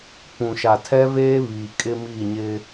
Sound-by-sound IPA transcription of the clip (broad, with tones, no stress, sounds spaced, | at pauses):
p ũ˨ ʃ a˨ tʰ ɛ˦ v eː˦ β iː˨ kʼ ɪ˦ m iː˦˨ ɲ ɪ˦